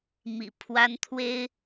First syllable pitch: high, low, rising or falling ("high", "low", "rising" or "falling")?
low